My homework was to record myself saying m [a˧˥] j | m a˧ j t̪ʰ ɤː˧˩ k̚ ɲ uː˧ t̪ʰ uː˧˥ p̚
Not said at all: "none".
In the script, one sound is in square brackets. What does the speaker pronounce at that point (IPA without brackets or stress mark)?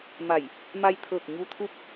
a˧˩